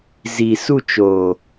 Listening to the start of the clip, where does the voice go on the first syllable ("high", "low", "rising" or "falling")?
low